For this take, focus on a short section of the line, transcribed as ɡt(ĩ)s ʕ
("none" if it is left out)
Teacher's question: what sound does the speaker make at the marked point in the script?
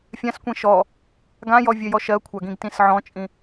ĩ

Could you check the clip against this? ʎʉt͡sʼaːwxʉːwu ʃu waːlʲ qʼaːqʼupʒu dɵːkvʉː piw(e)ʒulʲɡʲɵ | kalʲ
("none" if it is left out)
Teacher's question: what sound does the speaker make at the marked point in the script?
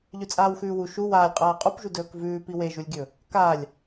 e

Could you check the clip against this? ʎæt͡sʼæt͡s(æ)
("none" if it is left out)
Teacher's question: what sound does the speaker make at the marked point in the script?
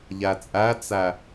æ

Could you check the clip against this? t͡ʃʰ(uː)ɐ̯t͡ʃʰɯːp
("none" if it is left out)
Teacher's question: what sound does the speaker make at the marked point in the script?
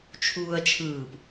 uː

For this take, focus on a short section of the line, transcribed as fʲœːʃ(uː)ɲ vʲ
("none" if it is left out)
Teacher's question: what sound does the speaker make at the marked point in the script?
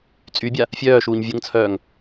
uː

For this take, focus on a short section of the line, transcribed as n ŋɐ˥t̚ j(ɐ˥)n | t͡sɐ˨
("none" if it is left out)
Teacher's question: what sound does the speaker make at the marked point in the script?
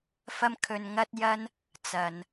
ɐ˥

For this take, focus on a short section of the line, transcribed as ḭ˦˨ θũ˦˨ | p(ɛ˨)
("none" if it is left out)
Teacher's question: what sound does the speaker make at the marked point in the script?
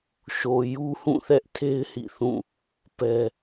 ɛ˦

